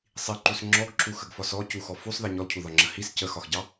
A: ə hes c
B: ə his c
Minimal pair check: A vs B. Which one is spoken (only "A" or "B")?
B